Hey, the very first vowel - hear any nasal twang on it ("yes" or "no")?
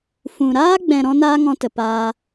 yes